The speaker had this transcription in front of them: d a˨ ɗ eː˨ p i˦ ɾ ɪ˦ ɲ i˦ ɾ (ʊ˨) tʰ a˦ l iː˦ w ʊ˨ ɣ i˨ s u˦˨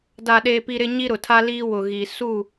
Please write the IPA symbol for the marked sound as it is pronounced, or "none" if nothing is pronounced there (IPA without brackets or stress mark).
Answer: ʊ˨